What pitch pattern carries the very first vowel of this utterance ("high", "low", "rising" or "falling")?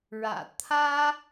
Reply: low